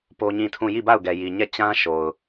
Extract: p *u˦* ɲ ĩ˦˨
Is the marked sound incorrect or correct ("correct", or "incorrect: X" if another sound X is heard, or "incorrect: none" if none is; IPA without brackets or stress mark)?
incorrect: o˦